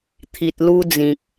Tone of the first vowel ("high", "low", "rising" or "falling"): low